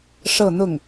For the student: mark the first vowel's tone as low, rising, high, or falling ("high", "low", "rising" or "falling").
falling